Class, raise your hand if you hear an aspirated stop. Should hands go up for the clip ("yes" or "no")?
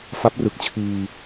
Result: yes